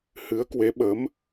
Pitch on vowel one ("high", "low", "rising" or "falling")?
rising